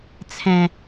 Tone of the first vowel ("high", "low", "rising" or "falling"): low